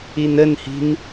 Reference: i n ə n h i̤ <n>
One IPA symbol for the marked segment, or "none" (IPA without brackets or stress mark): n